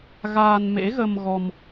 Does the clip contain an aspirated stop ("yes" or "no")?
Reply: no